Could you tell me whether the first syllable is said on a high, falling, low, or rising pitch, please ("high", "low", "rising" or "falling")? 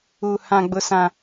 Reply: high